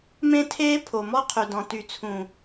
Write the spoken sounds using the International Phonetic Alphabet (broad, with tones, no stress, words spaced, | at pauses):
mẽ˦tʰeː˦pʰo˨ mɔ˦qʰy˨dɔ̃˨ ty˨t͡sʰũ˨